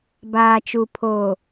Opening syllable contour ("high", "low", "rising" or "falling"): low